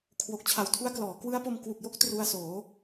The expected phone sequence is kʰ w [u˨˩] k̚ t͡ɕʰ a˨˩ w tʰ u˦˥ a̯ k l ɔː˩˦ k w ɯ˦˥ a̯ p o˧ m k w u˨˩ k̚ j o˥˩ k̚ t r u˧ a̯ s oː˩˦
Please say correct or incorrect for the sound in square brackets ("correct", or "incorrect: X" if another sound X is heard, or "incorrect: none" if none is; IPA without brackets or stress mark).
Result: incorrect: o˨˩